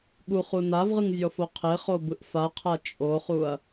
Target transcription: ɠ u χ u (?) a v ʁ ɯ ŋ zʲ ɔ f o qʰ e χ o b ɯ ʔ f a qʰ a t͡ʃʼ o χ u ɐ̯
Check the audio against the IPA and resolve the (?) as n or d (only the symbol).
n